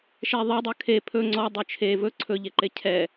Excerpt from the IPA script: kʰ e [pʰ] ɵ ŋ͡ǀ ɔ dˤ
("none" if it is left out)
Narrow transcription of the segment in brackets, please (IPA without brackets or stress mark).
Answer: pʰ